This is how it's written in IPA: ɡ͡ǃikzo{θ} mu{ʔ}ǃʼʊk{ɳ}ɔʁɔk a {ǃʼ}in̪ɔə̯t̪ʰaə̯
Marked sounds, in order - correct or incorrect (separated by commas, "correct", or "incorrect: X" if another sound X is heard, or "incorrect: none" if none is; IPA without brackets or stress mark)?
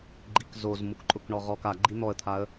incorrect: z, incorrect: k, correct, incorrect: ɡ͡ǃ